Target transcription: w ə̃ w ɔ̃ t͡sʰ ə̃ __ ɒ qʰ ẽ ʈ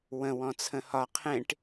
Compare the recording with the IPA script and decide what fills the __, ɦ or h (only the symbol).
h